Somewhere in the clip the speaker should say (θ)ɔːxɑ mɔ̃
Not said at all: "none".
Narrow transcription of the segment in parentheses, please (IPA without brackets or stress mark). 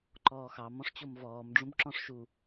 ǃ